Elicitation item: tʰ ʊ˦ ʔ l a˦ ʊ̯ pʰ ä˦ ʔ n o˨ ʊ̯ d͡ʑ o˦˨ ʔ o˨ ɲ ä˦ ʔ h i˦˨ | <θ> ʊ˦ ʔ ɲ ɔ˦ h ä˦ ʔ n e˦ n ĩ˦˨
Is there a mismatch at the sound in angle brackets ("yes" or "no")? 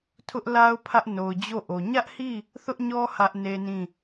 no